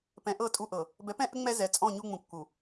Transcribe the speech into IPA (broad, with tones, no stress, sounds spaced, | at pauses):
p ɛ̃˨ ʔ ɤ˦˨ tʼ u˦ ʔ ɤ˨ | b ɛ˨˦ p ɛ̃˦ ʔ ə˦ ŋ͡m ɛ˦ z ɛ˨ t͡sʼ ɔ̃˦˨ ɲ u˦ ŋ͡m ũ˨ kː u˨